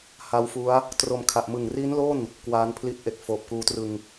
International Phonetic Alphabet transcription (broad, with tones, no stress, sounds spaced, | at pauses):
h a˦˥ w f u˦˥ a̯ | t r o˧ m kʰ a˨˩ ʔ m ɯ˨˩ ŋ r i˦˥ n l o˥˩ n | k w a˦˥ n pʰ l i˦˥ t̚ ʔ e˨˩ k̚ f oː˨˩ p̚ k uː˧ t r ɯ˧ ŋ